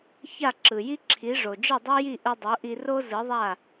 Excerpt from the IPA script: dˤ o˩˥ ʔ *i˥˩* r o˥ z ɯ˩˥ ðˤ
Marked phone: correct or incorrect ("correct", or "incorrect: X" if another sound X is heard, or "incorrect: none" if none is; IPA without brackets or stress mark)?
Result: incorrect: i˧